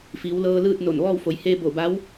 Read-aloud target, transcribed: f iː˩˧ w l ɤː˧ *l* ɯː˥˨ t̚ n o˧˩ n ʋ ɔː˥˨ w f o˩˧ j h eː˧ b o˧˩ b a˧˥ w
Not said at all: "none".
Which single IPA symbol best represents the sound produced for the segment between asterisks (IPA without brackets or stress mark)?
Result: l